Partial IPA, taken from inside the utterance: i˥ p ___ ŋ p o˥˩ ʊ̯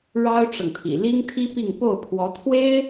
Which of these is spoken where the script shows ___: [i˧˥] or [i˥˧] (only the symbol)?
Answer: i˥˧